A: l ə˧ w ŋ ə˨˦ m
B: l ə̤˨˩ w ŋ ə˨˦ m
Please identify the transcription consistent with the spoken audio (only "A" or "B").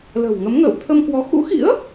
B